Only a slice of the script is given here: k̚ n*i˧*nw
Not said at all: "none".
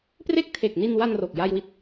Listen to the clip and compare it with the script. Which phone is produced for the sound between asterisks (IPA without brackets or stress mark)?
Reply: i˧